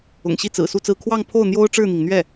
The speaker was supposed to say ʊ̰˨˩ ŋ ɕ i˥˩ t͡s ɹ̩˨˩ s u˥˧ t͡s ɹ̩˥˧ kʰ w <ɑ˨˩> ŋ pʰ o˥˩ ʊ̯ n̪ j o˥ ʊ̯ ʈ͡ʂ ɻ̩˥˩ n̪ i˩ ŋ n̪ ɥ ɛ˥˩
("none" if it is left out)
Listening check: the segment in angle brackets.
ɑ˥˧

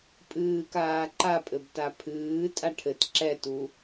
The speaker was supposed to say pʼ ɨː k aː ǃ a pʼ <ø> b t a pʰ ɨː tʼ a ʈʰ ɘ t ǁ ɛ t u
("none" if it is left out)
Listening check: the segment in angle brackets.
ɘ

